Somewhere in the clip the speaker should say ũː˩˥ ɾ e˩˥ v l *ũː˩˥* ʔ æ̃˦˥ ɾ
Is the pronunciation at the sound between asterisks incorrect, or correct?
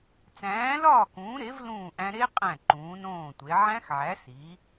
incorrect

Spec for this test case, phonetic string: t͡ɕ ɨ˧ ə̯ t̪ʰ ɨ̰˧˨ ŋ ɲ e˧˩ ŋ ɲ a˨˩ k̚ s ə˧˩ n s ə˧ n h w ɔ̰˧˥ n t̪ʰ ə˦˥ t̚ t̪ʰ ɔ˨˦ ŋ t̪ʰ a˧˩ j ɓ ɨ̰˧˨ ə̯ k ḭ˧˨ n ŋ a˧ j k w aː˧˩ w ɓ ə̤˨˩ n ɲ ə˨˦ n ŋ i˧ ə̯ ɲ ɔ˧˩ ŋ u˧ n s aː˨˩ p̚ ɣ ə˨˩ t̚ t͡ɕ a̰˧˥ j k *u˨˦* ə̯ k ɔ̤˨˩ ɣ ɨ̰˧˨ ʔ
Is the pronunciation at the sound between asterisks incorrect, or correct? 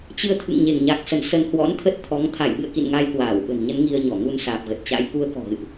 incorrect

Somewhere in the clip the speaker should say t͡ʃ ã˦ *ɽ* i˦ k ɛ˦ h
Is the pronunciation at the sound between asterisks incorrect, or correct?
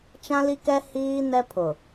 incorrect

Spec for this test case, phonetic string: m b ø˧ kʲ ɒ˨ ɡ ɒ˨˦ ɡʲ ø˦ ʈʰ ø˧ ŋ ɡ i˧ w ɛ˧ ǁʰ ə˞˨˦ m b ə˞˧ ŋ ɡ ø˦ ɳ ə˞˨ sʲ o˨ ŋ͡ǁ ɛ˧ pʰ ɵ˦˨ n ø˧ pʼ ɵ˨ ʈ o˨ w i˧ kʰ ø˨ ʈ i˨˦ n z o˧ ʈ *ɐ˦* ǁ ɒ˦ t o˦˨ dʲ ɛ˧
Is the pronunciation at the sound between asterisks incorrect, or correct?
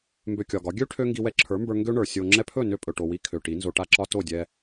incorrect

